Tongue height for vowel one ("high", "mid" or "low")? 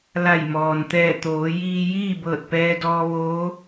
low